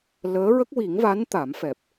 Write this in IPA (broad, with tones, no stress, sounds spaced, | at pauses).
l əː˧˥ ɹ ə˦˥ k̚ w i˨˩˦ ŋ v a˧˥ n t̪ a˨˩˦ m f ɛ˨˩ p̚